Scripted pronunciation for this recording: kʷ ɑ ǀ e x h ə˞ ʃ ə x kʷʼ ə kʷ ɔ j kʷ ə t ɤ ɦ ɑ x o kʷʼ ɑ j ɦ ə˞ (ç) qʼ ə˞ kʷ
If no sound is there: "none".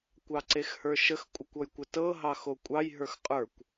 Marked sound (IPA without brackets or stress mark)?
x